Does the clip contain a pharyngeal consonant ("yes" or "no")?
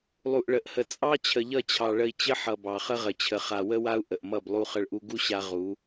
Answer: yes